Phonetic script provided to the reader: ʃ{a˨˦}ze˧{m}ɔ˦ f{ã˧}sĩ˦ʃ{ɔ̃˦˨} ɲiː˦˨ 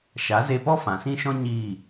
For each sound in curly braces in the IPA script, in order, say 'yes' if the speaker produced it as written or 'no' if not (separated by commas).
yes, no, no, no